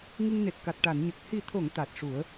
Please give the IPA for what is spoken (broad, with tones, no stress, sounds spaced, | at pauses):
ŋ ɨ˧ ŋ n e˨˩ t̚ k a˨˩ t̚ ʈ a˨˩˨ n ɲ ə˨˩ k̚ h i˨˩ t̪ʰ o˨˩˨ ŋ t̪ a˨˩ t̚ ʂ u˨˩˦ ə̯